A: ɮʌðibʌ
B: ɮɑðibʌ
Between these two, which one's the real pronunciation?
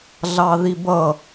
B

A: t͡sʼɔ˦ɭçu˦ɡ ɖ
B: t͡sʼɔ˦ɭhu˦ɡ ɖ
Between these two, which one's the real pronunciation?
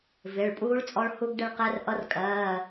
B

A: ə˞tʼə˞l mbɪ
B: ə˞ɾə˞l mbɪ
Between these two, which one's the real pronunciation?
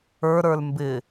B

